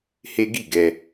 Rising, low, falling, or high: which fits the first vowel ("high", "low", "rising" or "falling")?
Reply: high